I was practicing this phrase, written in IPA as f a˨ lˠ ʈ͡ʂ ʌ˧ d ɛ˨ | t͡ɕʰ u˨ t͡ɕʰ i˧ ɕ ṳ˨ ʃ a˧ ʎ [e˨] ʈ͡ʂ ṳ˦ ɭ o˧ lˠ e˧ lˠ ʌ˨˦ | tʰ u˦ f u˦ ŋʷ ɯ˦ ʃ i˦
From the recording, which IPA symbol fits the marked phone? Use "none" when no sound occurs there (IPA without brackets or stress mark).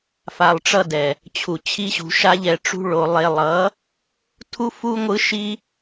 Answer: ɛ˨